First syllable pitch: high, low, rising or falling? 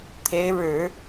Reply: rising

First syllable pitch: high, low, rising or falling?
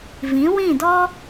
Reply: rising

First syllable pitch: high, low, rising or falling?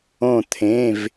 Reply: falling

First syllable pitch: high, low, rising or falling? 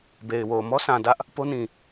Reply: low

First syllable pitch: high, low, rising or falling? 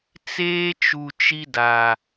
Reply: high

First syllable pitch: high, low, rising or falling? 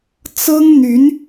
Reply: high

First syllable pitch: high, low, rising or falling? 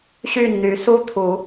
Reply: falling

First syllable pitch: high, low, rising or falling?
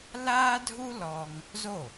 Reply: high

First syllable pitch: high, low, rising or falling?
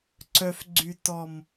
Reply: low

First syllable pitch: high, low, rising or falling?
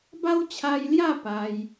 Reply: high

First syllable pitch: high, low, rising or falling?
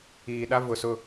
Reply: low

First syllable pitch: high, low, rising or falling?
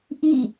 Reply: falling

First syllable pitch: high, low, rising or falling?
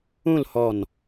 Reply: falling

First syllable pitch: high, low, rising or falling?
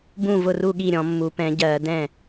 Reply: falling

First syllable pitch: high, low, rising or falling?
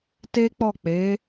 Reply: high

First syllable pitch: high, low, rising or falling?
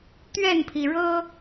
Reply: falling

